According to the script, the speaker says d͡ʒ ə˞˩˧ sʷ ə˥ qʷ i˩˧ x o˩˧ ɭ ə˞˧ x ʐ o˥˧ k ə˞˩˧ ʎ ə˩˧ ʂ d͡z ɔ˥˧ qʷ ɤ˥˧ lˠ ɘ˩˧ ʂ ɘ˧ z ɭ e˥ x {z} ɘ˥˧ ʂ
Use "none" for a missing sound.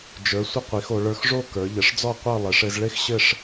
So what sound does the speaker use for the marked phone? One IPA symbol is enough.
ɕ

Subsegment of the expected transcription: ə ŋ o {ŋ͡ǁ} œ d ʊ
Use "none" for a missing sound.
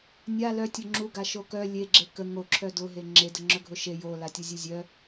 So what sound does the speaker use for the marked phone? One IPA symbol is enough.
ǁʰ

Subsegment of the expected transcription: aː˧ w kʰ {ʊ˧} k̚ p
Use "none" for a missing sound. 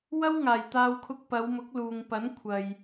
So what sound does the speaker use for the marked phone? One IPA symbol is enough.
ʊ˧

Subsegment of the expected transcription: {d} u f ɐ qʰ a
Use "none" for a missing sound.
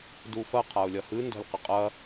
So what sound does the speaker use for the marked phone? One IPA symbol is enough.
d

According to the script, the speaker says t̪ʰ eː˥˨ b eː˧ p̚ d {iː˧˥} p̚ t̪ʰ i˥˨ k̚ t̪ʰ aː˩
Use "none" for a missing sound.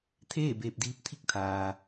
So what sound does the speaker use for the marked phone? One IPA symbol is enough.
iː˧˥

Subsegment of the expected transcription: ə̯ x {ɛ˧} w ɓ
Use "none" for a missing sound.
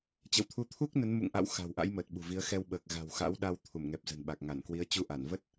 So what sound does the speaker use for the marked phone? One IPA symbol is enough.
ɛ˧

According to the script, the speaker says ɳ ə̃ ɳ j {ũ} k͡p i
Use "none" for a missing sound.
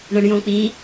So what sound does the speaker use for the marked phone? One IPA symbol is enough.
õ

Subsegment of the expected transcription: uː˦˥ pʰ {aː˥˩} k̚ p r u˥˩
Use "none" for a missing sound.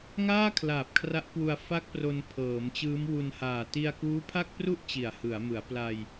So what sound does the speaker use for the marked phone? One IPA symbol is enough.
a˥˩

